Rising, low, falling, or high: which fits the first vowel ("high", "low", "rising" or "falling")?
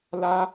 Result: high